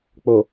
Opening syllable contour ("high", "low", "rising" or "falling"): low